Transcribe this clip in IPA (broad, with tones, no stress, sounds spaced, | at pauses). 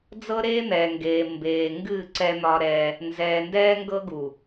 d͡z ɤ˦ ɾ eː˦ n̪ ɛː˨ ŋ ɡ eː˨ m b eː˨ ŋ ɡ ɨ˦˨ ǀ ɛ˦ n̪ ɒ˦ ɾ ɛ˦ | n z ɛː˨ n d ɛː˦ ŋ ɡ ɤ˦ ɡ u˨